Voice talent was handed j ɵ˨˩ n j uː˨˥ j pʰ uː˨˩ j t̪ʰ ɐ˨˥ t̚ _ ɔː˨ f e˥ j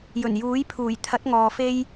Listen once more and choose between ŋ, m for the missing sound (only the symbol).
ŋ